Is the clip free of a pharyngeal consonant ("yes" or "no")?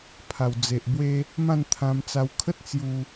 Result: yes